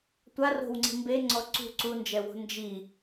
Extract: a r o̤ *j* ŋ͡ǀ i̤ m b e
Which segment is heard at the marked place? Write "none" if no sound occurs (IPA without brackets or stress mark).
w